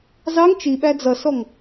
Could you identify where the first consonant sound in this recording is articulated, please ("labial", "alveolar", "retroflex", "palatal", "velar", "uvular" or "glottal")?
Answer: alveolar